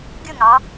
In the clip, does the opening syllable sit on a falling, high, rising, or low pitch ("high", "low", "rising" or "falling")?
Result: falling